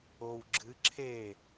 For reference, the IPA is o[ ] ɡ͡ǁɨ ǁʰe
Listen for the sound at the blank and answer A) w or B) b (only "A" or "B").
A